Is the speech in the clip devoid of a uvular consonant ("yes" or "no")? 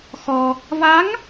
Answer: yes